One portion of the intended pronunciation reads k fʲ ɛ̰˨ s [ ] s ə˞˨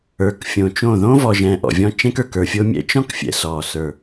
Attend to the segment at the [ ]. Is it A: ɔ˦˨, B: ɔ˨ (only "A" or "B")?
B